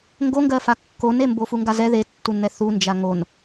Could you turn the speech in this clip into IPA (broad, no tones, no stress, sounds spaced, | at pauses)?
ŋ ɡ o ŋ ɡ ɜ f a kː o n e m b o f u ŋ ɡ a z ɛ ð e tː u n n̪ ɛ θ u n d͡ʒ a ŋ o n